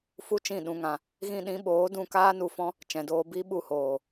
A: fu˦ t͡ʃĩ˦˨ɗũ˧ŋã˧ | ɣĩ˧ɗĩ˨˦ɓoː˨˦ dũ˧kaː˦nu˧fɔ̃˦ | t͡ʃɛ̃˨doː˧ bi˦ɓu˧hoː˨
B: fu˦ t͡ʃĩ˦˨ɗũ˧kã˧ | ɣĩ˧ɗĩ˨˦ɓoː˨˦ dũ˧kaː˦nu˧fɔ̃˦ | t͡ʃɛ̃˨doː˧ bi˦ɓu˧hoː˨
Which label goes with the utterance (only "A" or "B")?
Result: A